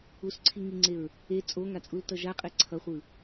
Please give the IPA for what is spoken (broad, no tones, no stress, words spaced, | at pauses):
usǀʰiŋiŋ͡ǀeɹ | e t͡sʼoŋat͡sʼultʌ ʒaqʼɛ ǀʰʌχʷɯ